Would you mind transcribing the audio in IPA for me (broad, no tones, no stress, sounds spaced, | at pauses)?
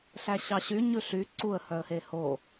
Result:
ɬ æ ɕ ɑ ɕ y ɲ ʉ ɬ y ǀ u ə̯ h œ ə̯ h e h o